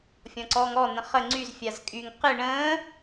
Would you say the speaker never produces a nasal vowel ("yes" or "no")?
no